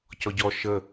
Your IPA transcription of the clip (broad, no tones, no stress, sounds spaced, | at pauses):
c ɔ ɟ ɔ ʃ ə